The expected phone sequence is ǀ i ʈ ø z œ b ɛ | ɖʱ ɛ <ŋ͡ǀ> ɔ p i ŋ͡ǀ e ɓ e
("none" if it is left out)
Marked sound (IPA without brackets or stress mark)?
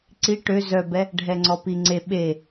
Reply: ŋ͡ǀ